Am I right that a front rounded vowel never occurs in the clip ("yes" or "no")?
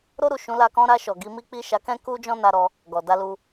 yes